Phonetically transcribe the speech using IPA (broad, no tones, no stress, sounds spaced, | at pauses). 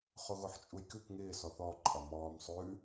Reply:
χ o ɣ o ħ t͡ʃʼ u j k ʉ k ŋ ɪː s ɔ θ ɔ ǃʼ ɒ m ɔː m sˤ ʉ